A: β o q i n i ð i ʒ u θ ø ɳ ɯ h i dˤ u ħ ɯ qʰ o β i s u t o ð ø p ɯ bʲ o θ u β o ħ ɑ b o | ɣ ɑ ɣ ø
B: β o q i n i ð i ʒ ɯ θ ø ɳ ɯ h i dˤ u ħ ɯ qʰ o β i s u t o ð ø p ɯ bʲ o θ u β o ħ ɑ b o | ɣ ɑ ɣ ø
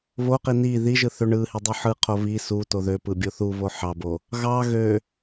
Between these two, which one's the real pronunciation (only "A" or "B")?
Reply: B